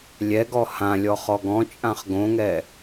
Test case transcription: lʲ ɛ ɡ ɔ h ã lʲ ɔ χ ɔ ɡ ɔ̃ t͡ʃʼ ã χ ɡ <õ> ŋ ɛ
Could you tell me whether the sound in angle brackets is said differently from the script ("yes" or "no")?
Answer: no